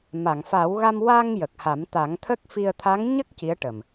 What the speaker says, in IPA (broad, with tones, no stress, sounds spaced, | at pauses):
m a˨˩˨ ŋ f a˨˩˦ w ɣ a˧ m w a˧ ŋ j ə˨˩ k̚ h a˨˩˦ m t̪ a˨˩˦ ŋ t̪ʰ ə˦˥ k̚ f i˧ ə̯ t̪ʰ a˧˥ ŋ ɲ ə˦˥ k̚ c i˧˥ ə̯ ʈ ə˨˩ m